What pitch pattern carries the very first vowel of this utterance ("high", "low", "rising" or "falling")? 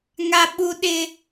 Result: high